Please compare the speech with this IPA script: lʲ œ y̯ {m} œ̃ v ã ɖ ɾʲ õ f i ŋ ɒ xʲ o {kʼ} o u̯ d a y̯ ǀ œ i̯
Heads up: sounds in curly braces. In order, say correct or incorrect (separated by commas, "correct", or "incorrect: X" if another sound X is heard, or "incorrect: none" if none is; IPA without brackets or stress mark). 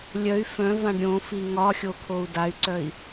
incorrect: f, incorrect: kʰ